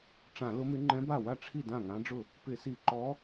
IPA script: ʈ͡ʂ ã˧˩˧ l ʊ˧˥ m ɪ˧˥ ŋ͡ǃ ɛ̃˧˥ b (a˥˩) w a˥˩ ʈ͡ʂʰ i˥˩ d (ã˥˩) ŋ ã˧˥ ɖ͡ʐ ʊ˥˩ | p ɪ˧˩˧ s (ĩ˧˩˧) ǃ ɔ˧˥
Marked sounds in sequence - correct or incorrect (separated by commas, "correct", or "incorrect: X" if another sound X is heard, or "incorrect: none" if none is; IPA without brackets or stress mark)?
correct, correct, incorrect: i˧˩˧